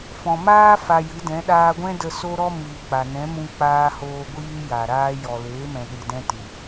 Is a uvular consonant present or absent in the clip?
absent